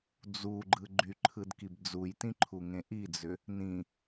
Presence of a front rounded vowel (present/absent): present